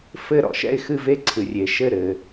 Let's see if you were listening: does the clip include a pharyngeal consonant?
no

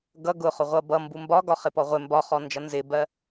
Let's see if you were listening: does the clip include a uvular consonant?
yes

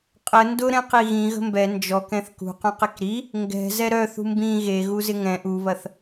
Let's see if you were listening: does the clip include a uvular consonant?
yes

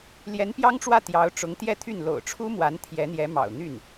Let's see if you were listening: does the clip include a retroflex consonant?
yes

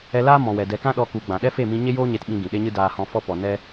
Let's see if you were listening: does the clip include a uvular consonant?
no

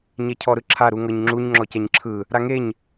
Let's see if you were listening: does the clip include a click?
yes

